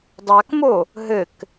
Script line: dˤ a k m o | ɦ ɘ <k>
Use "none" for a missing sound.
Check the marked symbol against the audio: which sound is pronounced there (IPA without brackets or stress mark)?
k